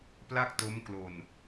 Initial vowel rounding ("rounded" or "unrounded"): unrounded